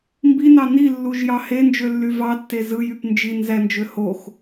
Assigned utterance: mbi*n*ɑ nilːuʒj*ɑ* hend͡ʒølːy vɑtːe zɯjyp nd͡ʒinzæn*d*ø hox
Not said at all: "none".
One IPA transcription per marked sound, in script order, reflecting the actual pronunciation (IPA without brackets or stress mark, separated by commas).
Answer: n, ɑ, d͡ʒ